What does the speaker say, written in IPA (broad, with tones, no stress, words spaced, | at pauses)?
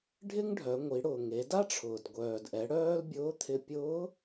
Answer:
ɖʱɪ˥ŋɖʱœ˩˧ ŋʷi˩˧ɽʊː˩ŋe˩˧ da˥ʈ͡ʂʰʊː˩dɡʷœː˩dʔɛ˩˧ ɽœː˥lbʲʊː˧˥t̪ʰɪ˧ pʲʊː˧˥